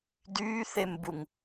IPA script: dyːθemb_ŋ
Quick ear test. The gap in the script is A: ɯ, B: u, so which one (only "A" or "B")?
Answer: B